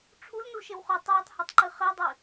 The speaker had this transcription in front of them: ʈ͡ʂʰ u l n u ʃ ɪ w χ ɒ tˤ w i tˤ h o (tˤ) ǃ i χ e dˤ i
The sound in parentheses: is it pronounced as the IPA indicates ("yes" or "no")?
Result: yes